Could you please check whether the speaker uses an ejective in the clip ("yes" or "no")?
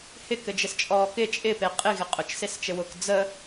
yes